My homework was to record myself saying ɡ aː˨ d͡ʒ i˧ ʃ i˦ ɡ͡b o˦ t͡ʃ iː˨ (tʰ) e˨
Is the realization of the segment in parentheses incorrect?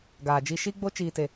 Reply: yes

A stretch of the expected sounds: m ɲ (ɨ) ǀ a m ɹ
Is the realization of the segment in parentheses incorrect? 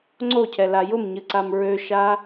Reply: no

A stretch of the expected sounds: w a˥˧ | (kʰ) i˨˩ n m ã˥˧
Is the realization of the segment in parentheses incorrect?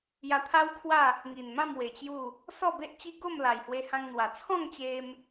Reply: yes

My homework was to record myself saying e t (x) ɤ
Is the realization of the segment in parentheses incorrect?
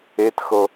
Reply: no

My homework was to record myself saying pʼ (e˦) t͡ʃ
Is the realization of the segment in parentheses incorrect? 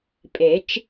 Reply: yes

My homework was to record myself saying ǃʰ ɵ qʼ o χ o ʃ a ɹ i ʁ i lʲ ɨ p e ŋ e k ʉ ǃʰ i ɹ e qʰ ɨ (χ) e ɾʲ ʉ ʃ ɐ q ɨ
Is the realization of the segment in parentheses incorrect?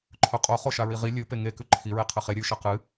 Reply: no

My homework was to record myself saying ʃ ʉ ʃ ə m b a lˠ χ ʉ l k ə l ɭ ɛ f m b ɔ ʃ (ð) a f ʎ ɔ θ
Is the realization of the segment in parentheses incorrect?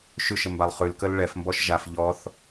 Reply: yes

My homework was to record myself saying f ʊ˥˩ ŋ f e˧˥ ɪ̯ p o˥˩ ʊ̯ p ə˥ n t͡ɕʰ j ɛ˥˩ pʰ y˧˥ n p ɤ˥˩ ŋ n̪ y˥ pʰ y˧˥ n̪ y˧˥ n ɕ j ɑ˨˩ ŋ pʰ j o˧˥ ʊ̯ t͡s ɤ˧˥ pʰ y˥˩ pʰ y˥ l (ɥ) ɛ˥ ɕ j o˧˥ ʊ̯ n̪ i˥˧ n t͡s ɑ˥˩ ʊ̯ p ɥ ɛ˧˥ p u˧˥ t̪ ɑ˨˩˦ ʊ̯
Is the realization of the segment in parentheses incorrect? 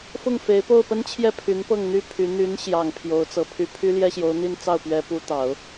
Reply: yes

